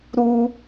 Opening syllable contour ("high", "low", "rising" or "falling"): high